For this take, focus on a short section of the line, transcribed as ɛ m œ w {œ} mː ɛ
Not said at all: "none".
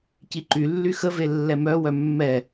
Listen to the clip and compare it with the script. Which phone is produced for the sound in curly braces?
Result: œ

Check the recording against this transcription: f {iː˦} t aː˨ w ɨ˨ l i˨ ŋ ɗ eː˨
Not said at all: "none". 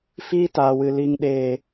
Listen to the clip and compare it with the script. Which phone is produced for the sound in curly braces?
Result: iː˦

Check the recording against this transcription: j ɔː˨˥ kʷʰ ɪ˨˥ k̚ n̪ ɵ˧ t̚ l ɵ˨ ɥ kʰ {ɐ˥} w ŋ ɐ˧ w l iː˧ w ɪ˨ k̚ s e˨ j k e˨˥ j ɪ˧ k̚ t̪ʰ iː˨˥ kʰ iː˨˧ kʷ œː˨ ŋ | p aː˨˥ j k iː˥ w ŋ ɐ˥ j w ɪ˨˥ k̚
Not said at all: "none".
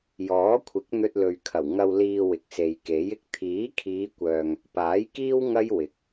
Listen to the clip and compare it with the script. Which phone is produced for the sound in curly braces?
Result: ɐ˨˩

